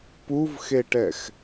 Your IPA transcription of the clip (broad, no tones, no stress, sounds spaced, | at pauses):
p u v x e ʈ ɛ x